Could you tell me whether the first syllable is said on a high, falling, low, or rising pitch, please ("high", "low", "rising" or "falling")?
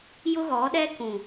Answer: high